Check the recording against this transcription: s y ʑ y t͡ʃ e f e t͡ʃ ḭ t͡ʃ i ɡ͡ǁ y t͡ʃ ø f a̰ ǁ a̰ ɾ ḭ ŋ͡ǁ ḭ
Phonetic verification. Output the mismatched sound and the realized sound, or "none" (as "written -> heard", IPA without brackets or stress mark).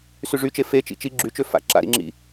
ʑ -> ʐ